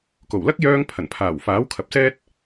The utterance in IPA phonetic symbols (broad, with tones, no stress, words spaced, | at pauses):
ko˨˩wlɐ˥k̚ jœː˧ŋ pʰɐ˨˩n pʰaː˨˩wfaː˨˥wkʰɐ˨p̚sɛː˥t̚